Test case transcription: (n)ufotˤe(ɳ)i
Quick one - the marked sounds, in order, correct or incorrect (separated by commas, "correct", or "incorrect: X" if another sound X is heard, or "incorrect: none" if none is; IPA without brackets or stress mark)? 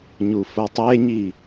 incorrect: ɲ, incorrect: ɲ